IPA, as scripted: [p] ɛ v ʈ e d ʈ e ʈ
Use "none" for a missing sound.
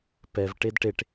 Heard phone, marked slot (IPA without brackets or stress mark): p